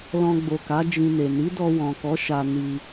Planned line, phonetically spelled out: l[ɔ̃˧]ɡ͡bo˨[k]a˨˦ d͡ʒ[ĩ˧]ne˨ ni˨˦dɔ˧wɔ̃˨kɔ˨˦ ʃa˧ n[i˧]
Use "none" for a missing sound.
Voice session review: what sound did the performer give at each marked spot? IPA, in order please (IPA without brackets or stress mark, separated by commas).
ɔ̃˧, k, ĩ˧, i˧